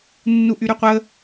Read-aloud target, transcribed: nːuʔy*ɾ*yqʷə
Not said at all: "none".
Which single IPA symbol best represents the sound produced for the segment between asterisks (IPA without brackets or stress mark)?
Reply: ɾ